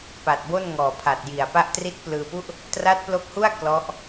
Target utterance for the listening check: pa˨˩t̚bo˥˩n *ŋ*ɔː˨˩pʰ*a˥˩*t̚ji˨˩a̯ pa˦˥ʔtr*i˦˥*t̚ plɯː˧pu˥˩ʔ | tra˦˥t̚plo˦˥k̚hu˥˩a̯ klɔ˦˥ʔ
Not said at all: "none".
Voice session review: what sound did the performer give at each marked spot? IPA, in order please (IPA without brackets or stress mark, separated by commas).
ŋ, a˨˩, i˦˥